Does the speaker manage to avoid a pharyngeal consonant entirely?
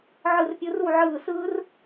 no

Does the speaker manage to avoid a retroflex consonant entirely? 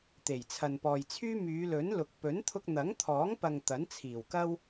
yes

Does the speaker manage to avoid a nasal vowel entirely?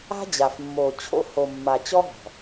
yes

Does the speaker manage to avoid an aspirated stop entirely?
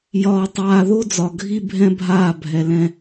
yes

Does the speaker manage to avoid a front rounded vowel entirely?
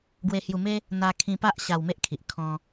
yes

